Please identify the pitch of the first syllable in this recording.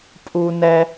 high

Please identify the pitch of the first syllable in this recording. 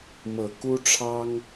low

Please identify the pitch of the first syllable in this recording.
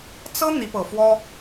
high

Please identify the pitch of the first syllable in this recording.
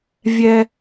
high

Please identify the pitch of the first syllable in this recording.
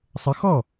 rising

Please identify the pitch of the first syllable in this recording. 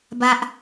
high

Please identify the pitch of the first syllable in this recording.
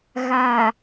low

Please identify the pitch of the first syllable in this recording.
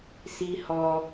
high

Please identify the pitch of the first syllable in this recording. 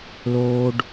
high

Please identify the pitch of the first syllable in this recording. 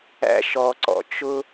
high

